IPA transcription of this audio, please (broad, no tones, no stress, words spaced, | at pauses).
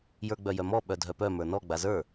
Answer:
jə˞ɡ͡bœjœmɔ ɓœdʱœpœ mə˞nɔ ɡ͡bazə˞